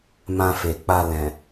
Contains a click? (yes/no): no